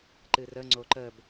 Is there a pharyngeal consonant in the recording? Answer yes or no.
no